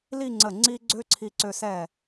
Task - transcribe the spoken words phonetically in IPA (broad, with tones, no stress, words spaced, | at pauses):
li˥˧ŋ͡ǀə˧˩ ŋ͡ǀi˥ ɡ͡ǀø˥ǀʰi˧ǀø˧ sɛ˧˩